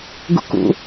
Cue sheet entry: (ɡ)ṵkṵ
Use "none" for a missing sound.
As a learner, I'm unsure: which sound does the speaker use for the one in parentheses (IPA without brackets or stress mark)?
ɡ